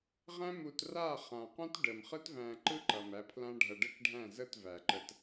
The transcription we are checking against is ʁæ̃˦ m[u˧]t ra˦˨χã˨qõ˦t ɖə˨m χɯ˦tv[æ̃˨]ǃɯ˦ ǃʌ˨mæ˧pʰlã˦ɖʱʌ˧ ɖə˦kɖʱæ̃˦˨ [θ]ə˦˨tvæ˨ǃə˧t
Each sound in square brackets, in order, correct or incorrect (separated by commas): correct, incorrect, incorrect